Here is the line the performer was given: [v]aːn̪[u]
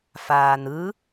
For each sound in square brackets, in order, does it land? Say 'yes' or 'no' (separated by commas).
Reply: no, no